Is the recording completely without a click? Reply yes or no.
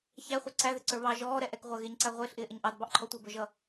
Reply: no